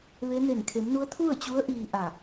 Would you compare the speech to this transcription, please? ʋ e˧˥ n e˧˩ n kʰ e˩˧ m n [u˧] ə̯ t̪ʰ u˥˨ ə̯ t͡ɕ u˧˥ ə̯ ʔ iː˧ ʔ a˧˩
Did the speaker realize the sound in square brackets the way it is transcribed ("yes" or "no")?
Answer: no